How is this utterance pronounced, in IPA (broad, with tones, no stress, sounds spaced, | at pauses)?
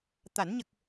t̪ a˨˩˦ n ɲ ə˨˩ k̚